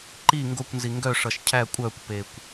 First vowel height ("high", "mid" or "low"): high